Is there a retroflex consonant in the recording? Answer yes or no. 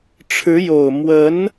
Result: yes